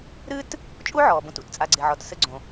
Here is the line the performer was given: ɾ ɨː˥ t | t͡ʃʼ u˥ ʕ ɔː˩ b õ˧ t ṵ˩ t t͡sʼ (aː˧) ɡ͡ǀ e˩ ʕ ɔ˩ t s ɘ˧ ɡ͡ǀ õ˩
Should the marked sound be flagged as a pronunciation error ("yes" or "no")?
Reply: yes